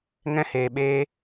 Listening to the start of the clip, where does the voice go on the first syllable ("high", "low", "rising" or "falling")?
high